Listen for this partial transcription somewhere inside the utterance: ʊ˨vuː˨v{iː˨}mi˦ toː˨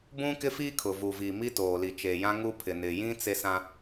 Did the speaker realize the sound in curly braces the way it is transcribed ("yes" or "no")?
yes